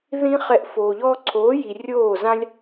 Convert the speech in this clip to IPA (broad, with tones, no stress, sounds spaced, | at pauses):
ð ĩ˦ χ ɛ˧ ʔ f oː˨ ʎ ɔː˦ ǀʰ oː˨˦ j i˨ rʲ oː˦˨ z ã˦ lʲ